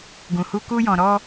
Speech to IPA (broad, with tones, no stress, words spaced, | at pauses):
ɡũ˨hu˧ ku˦jɔ̃˧ ɾɔ˦